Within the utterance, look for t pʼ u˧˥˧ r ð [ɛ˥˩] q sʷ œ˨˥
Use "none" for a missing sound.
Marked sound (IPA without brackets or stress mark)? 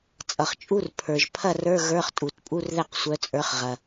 ɛ˥˩